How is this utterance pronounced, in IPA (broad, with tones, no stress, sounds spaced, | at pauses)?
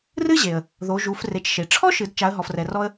r ɨ˥ ʑ e˩ ə̯ | ð o˩˧ ʒ u˩˧ f r e˩˧ t͡ʃ ʃ e˩ ʈ͡ʂʰ ɔ˥ ʃ ɨ˩˧ d t͡ʃ a˩˧ ə̯ ɦ ɔ˩ f r ɛ˩ r ɔ˧ ə̯